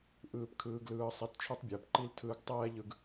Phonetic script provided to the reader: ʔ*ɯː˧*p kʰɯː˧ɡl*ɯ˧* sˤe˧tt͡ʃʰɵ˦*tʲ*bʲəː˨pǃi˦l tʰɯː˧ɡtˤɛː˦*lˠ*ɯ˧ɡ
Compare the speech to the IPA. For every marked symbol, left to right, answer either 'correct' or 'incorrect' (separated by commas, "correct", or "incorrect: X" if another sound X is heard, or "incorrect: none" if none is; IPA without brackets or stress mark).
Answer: incorrect: ɯː˦, incorrect: ɯː˧, incorrect: tˤ, incorrect: ʎ